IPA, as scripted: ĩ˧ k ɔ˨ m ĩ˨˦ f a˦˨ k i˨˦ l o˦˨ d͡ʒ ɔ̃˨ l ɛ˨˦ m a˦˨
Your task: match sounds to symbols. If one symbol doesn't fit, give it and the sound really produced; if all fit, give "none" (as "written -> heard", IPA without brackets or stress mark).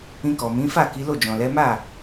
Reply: none